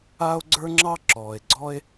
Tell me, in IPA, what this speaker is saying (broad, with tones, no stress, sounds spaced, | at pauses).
aː˦ o̯ ɡ͡ǀ ə˞˦ ŋ͡ǁ ɑ˦ ǁ ɔː˨ e̯ ɡ͡ǀ ɔ˦ e̯